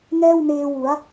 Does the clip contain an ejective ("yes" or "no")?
no